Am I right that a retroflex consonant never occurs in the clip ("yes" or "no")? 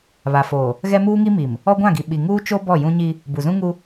yes